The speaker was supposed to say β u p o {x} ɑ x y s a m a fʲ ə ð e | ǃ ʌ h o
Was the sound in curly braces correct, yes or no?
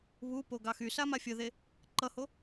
no